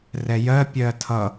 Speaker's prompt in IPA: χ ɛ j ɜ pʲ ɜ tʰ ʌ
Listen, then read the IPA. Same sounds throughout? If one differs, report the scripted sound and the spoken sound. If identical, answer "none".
χ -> r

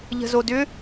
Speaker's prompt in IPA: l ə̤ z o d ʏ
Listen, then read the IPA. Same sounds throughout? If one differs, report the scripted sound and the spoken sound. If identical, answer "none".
l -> ʎ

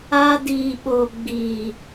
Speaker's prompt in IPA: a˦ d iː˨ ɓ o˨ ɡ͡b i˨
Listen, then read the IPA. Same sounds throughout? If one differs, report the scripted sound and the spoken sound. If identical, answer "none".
none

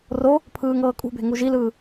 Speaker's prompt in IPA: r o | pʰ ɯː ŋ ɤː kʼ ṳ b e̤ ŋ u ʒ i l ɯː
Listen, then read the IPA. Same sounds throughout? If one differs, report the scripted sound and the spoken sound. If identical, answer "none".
none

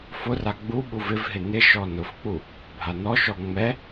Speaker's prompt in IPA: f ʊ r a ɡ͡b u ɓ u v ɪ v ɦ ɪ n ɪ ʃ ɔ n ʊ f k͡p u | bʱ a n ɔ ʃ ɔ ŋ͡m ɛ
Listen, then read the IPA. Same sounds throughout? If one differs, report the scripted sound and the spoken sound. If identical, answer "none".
none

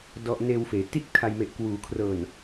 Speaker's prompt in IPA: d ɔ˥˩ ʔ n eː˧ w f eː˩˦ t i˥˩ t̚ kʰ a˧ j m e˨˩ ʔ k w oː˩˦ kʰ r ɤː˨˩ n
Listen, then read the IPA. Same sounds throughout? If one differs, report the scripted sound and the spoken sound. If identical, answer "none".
oː˩˦ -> uː˩˦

